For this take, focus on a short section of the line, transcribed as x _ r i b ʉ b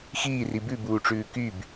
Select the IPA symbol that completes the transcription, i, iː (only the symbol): iː